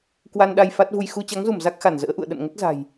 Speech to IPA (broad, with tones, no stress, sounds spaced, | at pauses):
k w a˧ n ɗ a˧ j f a˦˥ t̚ v u˧ j x u˧ t͡ɕ a˨˦ ŋ z u˧˩ m z a˦˥ k̚ x a˧˩ n z ə̰ː˧˥ ʔ ṵ˧˨ ə̯ ɗ ə̰˧˨ n ŋ ə˦˥ t̚ z a̤˨˩ j